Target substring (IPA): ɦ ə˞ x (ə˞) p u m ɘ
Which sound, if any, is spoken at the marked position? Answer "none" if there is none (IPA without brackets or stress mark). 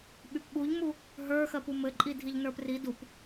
ɜ